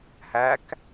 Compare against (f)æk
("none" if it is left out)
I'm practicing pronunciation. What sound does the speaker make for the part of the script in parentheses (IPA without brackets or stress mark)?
h